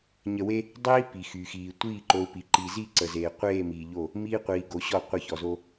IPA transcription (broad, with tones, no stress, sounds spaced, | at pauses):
ɲ ə˨ w e˦ | dˤ iː˦ p i˨ x y˨ x iː˨ tʷ iː˦˨ ǃ o˨ u̯ p i˨ ǃ i˨ z i˦˨ ǀ ə˨ z eː˨ qʷ eː˦˨ m iː˨ ʎ o˦˨ | m iː˦ qʷ iː˨ ɡ o˨˦ ɕ ɔ˦˨ qʷ ə˦˨ ç ɔ˨ z o˦